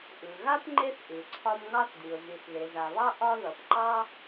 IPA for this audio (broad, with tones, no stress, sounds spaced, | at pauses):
ʔ ɯ˩ ɣ a˥ p ŋ͡ǃ e˦ θ ʔ ɯ˩ ǀʰ ɒ˦ m ŋ ɑ˥ θ d i˩ ʊ̯ z i˩ θ ð e˩ z a˩ β ɑ˥ ʔ ɒ˦ ð ʌ˩ p ǃ ɑ˥